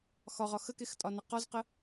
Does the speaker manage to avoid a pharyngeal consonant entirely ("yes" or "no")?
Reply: yes